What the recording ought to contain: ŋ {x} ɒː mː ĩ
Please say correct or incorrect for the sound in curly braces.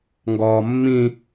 incorrect